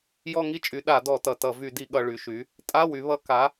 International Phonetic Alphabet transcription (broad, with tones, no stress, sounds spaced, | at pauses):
j ɔ˥˧ ŋ i˥˧ t͡ʃʼ y˨˥ ɗ a˧˩˧ d ɔ˧˩˧ t ʌ˨˩ t ʌ˧˩˧ v y˧˩˧ d i˧˩˧ ɠ ʌ˨˩ ɭ y˩˧ ʃ y˩˧ | tʼ a˧˥˧ w y˩˧ β ʌ˨˥ k a˨˥